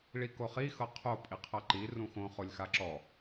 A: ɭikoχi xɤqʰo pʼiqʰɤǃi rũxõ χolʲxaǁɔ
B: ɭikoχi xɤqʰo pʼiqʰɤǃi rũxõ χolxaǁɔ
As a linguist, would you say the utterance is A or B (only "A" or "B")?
A